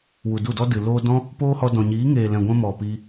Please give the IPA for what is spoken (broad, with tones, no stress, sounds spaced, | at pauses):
w u˨ d u˦˨ d ɔ˦ d ɨ˨ l oː˧ d ɔ̃˦ | p oː˦ h ɔ˧ d ɔ̃˨ ɲ iː˨˦ ŋ eː˨ l ɛ̃˨ ɡʷ ɛ̃˧ m ɔ˨ p i˧